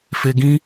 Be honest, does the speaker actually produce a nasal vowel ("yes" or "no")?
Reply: yes